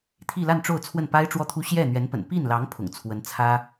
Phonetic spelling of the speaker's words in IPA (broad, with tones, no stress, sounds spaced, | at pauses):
t̪ʰ i˥˧ l a˥˧ n ʈ͡ʂ o˥˧ ʊ̯ t͡sʰ w ə˥˩ n p a˥ ɪ̯ ʈ͡ʂ w ɔ˥˩ t̪ʰ u˥ ɕ j ɛ˥˩ n̪ ɥ ɛ˧˥ n p ə̰˨˩ n p i˥˩ n l ɑ˧˥ ŋ pʰ ʊ̰˨˩ ŋ t͡sʰ w ə˧˥ n t͡sʰ ä˥